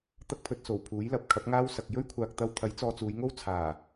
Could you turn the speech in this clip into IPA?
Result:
t̪ ɐ˥ k̚ pʰ ɵ˧ t̚ s o˨˩ w pʰ uː˨˥ j l ɐ˨˥ p̚ kʰ ɐ˨˥ p̚ ŋ aː˥ w s ɐ˨ k̚ j ɵ˥ ɥ kʷʰ aː˨ k̚ t̪ ɐ˧ w t̪ʰ ɐ˨˥ j t͡s ɔː˧ t͡s uː˨˧ j ŋ o˥ w t͡sʰ aː˨˩

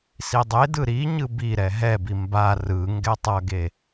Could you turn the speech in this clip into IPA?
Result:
s i dˤ e d ɯ ɾ i ɲ ɯ b i ɾ ɛ ɦ ɛ b i m b a r ɯ ŋ ɡ ɛ tˤ ʌ ɡ e

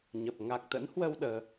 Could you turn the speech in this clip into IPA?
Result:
ɲ ə˨˩ p̚ ŋ a˨˩ k̚ t̪ ə̰˧˥ n h w ə˧ w ɗ əː˨˦

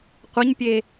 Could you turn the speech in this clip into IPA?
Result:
qʷ ɐ ɲ pʲ e

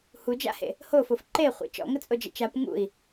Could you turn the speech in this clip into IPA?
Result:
h u d͡ʒ a̰ h ḛ | h o f o f ǃ e χʷ ḛ t͡ʃ ɔ̰ ŋ ə t͡sʼ o d͡ʒ ə̰ t͡ʃ a p ŋ ṵ i̯

